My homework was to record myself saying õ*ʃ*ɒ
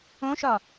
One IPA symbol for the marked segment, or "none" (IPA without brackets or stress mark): ʃ